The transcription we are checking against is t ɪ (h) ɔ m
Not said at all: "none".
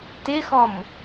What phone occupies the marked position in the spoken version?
x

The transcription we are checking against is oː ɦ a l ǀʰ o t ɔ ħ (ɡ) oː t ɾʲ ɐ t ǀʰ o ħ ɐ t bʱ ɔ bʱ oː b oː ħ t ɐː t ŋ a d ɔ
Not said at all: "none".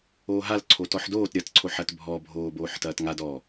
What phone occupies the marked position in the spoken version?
d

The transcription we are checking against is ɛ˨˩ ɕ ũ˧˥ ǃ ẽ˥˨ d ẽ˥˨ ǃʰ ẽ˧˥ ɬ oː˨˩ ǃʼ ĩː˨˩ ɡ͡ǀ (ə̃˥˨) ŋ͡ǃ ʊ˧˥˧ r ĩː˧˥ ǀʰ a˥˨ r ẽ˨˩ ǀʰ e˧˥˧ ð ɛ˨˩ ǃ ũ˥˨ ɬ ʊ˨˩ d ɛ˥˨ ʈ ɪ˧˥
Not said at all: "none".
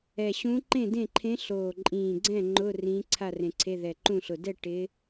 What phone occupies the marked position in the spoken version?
ɛ̃˥˨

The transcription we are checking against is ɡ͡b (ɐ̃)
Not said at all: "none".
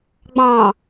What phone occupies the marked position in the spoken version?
ɑ̃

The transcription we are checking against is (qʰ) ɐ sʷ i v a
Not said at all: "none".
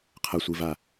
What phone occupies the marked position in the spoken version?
qʰ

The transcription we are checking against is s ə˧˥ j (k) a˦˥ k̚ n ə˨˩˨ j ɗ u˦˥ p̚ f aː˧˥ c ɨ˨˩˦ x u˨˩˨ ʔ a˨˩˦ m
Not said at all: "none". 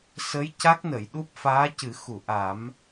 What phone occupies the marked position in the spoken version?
c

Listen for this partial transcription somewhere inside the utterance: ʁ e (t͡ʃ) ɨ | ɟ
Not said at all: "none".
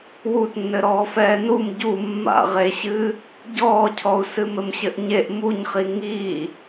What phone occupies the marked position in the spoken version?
ɕ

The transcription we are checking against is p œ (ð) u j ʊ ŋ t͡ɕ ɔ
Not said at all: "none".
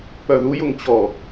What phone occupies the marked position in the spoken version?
ð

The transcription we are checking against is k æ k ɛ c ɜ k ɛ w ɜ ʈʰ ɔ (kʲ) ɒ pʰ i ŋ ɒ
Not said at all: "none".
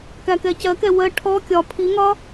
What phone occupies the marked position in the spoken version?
kʲ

